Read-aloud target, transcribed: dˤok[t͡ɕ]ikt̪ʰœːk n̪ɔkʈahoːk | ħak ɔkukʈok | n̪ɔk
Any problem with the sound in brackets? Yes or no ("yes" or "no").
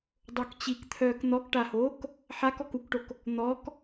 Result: no